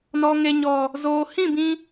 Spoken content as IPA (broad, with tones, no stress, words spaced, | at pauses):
nɔ˨ŋe˨ɲɔ˨ | zoː˨hĩ˦˨bĩ˧